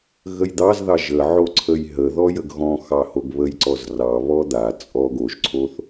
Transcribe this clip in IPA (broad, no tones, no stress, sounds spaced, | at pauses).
ɣ ə j d̪ ɑ z ð ɑ ʒ ə ʕ o ǀʰ ə j ɦ ə ð ɔ j ə ɡ ɣ ɔ̃ x ɑ h o ɡ β ə j ǀ ɔ z r ɑ β ɔ d̪ a t͡sʼ ɔ ɡ o ʒ ǀʰ o θ